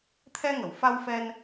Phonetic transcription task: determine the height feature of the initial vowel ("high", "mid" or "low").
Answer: mid